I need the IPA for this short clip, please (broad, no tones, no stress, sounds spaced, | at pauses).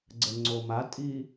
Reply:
ɡ͡ǀ ə ŋ͡ǀ o m a tʼ i